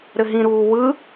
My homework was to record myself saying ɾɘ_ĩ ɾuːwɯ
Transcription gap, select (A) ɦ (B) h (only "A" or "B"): A